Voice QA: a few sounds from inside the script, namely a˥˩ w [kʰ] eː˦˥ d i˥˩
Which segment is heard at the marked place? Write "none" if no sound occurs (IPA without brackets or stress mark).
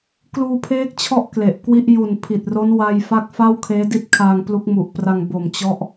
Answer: kʰ